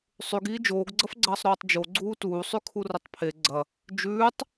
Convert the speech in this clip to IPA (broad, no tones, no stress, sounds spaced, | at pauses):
sˤ ʉ ɡ iː d͡ʒ oː ɡ ɡ͡ǀ ɐ f ɡ͡ǀ ɐː sˤ ɾ oː tˤ d͡ʒ o ɡ͡ǀ uː t uː sˤ ʉ kʰ u r ɐ tˤ pʰ e ɡ͡ǀ ɐ | d͡ʒ ʉː tˤ